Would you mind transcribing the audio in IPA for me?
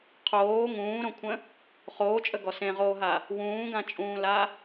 qʰ oː ŋ ũː ɾ õ kʷʰ ə̃ | χ oː t͡ʃʼ ə ɡ ɔ s ẽ ʁ oː ɦ a | w ũː ɡ ã t͡ʃʼ ũː l a

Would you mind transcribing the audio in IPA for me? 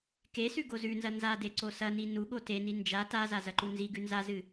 k e s ʉ ɡ o z ʉ n z ɐ n z a d e ǀ o s ɐ n i n u ɠ o t e n i n d͡ʒ a t a z a z ɐ ǃ u n z i ɡ ʉ n z a z ɨ

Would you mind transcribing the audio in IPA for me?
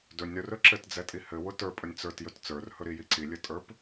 d ɵ nʲ ɾ ɵ r ɵ ǁ ɘ t d͡z ɛ tʼ i h ɘ w ʊ t ə˞ pʼ ɵ nʲ t͡s ə˞ t j ɵ t t͡s ə˞ r h ɵ ɾ i j i ǀ i lʲ ɘ tʼ ə˞ p

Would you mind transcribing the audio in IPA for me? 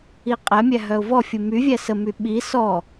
i qʼ ɛ mʲ æ ɦ œ ʊ̯ v ɔ fʲ u m y vʲ æ s ə m y ɓ i s ɔ

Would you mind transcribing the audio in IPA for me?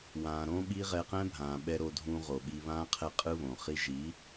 w ãː˨ ɾ õ˦ ɓ i˦ ʁ ɛ˧ q ɛ̃˦ bʱ ãː˨ ɓ ɛ˧ ɾ o˧ dʱ ũ˧ ʁ o˨ ɓ i˧ β ãː˦ qʰ ɛ˦˨ qʼ ɯ˦ β õ˨ χ i˧ ʒ i˨˦

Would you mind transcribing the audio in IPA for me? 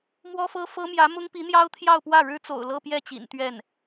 m w ɔ˥ f ɤ˥ f ɤ˥ m j ä˧˥ m ʊ˥ ŋ p i˧˥ n̪ j ɑ˥ ʊ̯ t̪ʰ j ɑ˥˧ ʊ̯ p w ä˥˩ ɻ ɻ̩˥ t͡s o̰˨˩ ʊ̯ l ɤ˥˧ p j ɛ˥˩ t͡ɕ ḭ˨˩ n t̪ ɥ ɛ˥˩ n

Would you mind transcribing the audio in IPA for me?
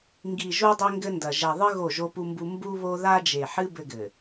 ŋ ɡ i˨ ʒ u˦ dˤ e˦ ŋ ɡ ɘ˦ n d ɐ˨ ʒ ɛ˨ ðˤ ɨ˦ ɣ o˦˨ ʒ o˦ p u˦ m b u˦ m b u˦ β o˦ ð a˦ d͡ʒ e˨ ħ ɨ˦ b ɘ˦ ɡ ɘ˨

